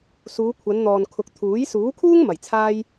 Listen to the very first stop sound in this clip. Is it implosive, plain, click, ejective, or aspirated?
aspirated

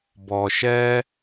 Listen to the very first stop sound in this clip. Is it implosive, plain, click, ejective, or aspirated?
plain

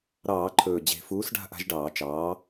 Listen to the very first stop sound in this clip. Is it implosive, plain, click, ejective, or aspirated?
click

